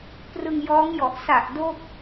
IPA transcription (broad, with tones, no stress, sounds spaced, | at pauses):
p r ɯ˧ ŋ j ɔː˦˥ ŋ j ɔ˨˩ ʔ s a˨˩ ʔ d o˥˩ k̚